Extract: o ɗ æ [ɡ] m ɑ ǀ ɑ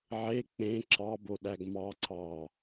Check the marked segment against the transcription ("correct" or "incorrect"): correct